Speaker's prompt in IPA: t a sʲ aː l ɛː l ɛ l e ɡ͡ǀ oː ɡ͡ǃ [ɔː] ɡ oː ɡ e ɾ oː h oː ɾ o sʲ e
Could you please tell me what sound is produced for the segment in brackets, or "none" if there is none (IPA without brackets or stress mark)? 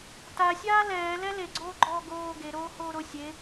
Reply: ɔː